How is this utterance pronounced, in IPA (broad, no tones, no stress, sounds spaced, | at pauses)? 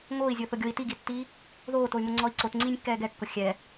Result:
ŋ oː i̯ zʲ ʊː θ ʊ ɡʲ o i̯ t i ɡ i tː iː | ð oː t o y̯ m ʊ ŋ͡ǀ ɔ i̯ ǀ o t ŋ͡ǀ iː nʲ kː ɛː ɡ ɛ kː ʊ xʲ ɛ